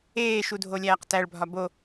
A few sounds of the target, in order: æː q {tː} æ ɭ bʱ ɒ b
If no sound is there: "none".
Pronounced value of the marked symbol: t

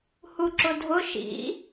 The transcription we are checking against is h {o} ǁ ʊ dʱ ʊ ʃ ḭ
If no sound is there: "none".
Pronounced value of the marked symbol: u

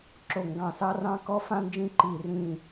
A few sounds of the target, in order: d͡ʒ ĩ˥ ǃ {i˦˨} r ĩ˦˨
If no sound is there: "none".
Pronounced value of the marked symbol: i˦˨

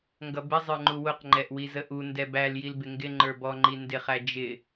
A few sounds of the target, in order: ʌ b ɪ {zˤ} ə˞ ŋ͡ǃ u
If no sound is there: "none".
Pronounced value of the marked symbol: zˤ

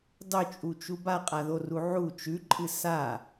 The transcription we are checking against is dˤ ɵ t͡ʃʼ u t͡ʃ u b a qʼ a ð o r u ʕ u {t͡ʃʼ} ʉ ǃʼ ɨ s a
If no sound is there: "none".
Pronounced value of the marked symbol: t͡ʃ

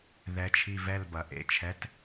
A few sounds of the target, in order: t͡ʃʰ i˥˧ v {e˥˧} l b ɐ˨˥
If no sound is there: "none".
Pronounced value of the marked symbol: ɛ˥˧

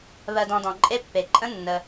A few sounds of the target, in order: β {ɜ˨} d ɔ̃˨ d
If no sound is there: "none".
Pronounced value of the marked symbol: ɜ˨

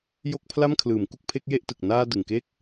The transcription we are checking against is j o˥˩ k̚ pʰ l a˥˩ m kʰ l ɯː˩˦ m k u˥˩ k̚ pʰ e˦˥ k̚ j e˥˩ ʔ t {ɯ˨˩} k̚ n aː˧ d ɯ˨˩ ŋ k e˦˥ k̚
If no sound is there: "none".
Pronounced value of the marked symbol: ɯ˨˩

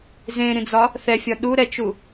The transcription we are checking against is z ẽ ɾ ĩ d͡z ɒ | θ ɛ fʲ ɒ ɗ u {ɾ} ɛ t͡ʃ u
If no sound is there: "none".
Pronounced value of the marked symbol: ɾ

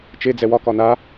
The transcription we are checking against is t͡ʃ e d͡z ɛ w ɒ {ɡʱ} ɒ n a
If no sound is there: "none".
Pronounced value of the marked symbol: k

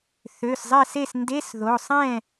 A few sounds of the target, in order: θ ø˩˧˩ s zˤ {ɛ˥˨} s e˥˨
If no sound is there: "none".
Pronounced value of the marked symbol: ɛ˥˨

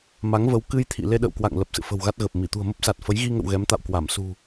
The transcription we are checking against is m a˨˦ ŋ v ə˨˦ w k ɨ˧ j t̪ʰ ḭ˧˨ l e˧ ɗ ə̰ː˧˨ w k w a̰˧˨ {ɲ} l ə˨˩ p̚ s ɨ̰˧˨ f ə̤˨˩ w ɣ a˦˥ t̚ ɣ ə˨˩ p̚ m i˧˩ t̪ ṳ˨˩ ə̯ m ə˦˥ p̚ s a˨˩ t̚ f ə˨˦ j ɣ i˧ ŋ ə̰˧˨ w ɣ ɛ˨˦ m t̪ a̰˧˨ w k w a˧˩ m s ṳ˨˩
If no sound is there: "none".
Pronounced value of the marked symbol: ŋ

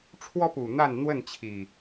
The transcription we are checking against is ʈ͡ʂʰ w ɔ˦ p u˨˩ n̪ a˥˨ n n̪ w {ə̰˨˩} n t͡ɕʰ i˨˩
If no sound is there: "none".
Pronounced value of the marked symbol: ə˥˨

